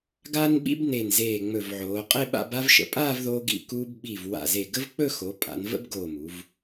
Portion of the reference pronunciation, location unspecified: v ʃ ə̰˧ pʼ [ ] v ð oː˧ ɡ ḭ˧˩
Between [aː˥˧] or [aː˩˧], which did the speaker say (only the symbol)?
aː˥˧